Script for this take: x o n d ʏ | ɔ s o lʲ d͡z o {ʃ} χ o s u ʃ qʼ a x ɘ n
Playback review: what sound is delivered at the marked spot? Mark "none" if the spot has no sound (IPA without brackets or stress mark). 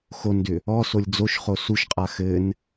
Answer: ʃ